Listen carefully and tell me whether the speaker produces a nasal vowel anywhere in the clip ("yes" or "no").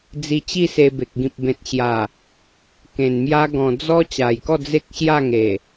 yes